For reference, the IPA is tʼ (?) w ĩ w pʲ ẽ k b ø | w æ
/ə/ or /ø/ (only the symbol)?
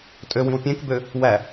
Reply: ø